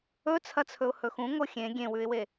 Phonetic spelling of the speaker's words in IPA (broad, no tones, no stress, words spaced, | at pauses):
ɵt͡sʰɐt͡sʰɵʊ̯ hɵxũŋo xʲẽ ɡʲẽwʉɪ̯we